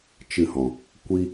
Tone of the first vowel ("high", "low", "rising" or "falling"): falling